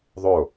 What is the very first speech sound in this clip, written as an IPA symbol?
ðˤ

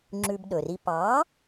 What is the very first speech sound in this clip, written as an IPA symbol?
ŋ͡ǁ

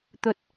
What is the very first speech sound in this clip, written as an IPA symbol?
t̪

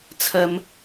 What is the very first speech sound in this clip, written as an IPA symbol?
t͡sʰ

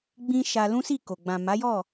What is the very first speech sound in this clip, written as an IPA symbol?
ɡ͡b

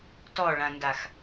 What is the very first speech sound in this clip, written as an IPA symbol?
t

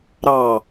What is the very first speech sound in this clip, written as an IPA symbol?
ɾ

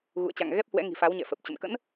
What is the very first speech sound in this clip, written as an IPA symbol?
ɣ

